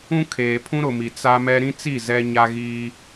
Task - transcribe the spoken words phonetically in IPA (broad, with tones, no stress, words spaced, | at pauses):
ũ˦kʰeː˨ pʰũ˦ɾʊ˨mi˨ t͡sa˦mɛ˦ ɾĩ˦t͡si˦˨ zɛ˦ ɲa˦ɣiː˦